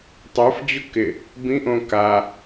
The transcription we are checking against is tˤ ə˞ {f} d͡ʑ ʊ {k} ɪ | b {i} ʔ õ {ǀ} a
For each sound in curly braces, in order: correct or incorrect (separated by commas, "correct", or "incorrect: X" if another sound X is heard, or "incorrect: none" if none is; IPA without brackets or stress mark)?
correct, correct, incorrect: ĩ, incorrect: k